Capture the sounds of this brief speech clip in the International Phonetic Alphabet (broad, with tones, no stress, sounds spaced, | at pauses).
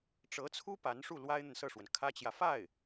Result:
ʈ͡ʂ ɤ˧˥ t͡sʰ u˥ p a˧˥ n ʂ u˥˩ l w a˥ ɪ̯ n̪ ə˨ n s ɤ˥˩ ʂ w ə˩ n kʰ ä˥ t͡ɕ j ä˨ f a˥˩ ɪ̯